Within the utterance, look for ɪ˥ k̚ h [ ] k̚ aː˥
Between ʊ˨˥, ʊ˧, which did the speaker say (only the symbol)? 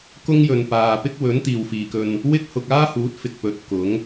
ʊ˧